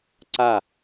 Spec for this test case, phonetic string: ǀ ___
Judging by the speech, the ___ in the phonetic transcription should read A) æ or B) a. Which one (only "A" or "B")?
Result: B